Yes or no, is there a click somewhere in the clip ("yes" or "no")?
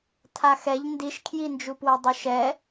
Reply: no